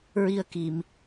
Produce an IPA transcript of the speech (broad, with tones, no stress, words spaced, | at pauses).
ɹi˧ə̯ki˨˩˨m